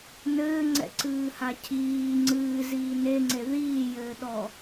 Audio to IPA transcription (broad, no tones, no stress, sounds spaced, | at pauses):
n ɘː ŋ͡ǀ ɛ̰ ǀ ɨː h a cʰ iː ŋ͡ǀ ɨː z iː n e ŋ͡ǀ e ð iː j ɘː ɗ ɔ